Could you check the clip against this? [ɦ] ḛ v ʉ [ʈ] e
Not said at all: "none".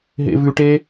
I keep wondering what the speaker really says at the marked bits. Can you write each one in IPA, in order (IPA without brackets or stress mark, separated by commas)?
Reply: ɦ, ʈ